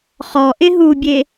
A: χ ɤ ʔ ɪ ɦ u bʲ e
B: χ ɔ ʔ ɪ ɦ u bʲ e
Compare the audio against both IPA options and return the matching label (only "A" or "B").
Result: B